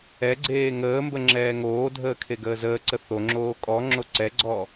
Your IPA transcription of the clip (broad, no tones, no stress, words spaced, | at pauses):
ɛɡ͡ǀeː ŋəːmbə ŋ͡ǁɛːŋoːdʱəː kʰeɡəːzəːǀə θoŋ͡ǁoː kʼɔŋ͡ǁo ǀɛɡ͡ǀɔː